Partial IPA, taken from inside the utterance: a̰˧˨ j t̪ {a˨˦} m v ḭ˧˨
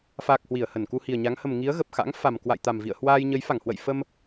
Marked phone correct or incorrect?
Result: incorrect